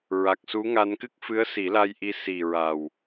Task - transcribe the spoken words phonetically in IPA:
ɹ a˨˩ k̚ s u˧˥ ŋ a˧ n k ɨ˦˥ k̚ f ɨ˧˥ ə̯ s i˨˩˦ l a˧ j ʔ i˧˥ s i˨˩ ɹ a˨˩ w

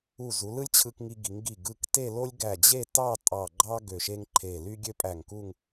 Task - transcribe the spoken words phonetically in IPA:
u˧˩ z u˩˧ l ɯ˥ lʲ t͡ɕʰ ɯ˧ k ŋ i˧ ɡ i˩˧ ŋ ɡ i˧˩ ɡ ɯ˧˩ k t e˥˧ l o˥ lʲ ɡ æ˧˩ d͡ʑ e˥˧ t ɑ˥˧ tʼ ɑ˧˩ ɡ͡ǃ ɑ˥ ɡ ø˧˩ ʃ e˥ ŋ ǃʰ e˧˩ l y˥ ɡʲ ø˥ pʼ æ˧˩ ŋ k u˥˧ ŋ

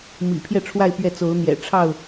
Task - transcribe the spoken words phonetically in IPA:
m ḭ˨˩ pʰ j ɛ˥˨ ʈ͡ʂʰ w a˥˨ ɪ̯ p ɥ ɛ˥˨ t͡s o˨˦ ʊ̯ n̪ j ɛ̰˨˩ ʈ͡ʂʰ ɑ˥˨ ʊ̯

